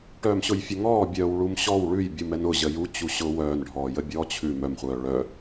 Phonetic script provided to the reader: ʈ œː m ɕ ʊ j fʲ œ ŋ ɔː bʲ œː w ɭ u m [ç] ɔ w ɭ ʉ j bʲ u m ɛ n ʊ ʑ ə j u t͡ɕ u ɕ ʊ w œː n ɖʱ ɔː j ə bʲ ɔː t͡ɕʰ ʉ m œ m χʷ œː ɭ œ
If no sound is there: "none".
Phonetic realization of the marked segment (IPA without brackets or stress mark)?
ɕ